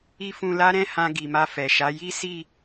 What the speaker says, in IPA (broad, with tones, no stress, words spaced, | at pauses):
i˦fũ˧la˦ ɾɛ̃˦hã˧ ɡi˨ma˧fɛ˨ʃa˨˦ ji˦si˦˨